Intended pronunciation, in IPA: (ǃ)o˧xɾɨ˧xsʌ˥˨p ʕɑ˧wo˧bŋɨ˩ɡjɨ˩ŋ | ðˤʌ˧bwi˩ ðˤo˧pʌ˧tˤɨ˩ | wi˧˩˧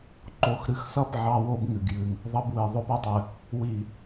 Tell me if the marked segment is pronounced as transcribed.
yes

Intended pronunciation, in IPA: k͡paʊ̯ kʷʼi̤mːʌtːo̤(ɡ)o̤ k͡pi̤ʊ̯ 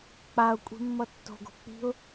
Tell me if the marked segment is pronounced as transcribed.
yes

